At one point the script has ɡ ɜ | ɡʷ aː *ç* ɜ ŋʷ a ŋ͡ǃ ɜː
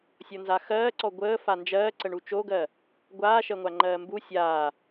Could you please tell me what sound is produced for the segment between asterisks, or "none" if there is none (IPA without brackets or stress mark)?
ʃ